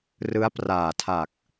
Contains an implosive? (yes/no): no